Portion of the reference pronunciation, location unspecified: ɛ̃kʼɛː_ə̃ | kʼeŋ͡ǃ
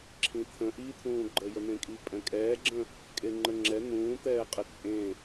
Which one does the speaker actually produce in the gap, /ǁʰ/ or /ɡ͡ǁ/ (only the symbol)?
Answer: ɡ͡ǁ